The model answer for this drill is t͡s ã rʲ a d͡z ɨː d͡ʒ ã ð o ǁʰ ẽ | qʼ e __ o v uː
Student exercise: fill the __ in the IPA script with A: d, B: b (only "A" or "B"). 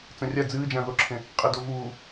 A